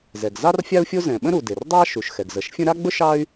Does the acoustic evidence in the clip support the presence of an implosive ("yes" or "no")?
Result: yes